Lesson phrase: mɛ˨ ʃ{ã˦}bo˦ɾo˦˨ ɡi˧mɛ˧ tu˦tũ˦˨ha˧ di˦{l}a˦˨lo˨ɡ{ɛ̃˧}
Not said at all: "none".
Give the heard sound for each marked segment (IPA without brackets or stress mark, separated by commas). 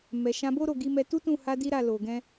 ã˧, ɾ, ɛ̃˧